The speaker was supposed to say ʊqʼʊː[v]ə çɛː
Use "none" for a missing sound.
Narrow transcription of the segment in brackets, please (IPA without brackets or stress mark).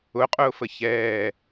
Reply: f